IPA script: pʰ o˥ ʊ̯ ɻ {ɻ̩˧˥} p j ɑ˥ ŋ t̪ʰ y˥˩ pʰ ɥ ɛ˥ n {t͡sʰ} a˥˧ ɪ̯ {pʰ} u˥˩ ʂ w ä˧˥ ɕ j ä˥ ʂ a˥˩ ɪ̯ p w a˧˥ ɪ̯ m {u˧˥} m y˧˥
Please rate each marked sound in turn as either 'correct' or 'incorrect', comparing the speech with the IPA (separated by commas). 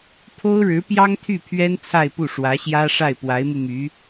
correct, correct, incorrect, incorrect